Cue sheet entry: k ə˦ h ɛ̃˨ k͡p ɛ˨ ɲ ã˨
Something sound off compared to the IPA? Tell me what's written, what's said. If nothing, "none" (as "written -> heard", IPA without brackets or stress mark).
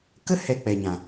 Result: ɛ̃˨ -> ɛ˨